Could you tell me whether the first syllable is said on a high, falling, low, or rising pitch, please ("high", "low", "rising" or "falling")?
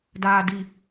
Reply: low